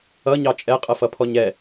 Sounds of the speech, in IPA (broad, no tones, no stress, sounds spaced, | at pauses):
ʌ ɲ ɑ t͡ʃʼ ɛ qʼ ɜ f ʌ pʰ ɔ ɲ ɛ